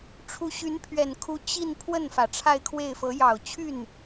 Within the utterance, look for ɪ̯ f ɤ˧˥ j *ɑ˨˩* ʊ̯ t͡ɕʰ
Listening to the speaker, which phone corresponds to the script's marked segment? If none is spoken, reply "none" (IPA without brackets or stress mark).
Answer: ɑ˨˩